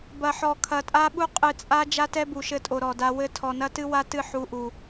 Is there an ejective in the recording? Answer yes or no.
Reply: yes